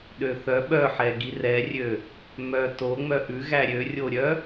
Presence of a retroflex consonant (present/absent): absent